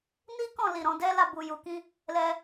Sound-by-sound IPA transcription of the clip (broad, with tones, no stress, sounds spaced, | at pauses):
n i˦ k ɔ̃˦˨ l i˨ ɾ ɔ̃˨˦ d ɛ˦ l a˦˨ b u˨ j u˨ k ĩ˧ | l ɛ˧